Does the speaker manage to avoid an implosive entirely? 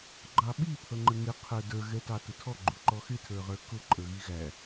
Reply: no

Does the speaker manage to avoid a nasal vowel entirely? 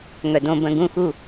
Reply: no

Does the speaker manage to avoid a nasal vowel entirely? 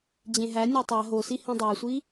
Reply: no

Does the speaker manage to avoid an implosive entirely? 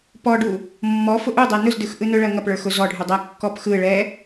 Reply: yes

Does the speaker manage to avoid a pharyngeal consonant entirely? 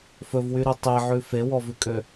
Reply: no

